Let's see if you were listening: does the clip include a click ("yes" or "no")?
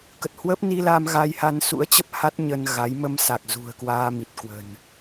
no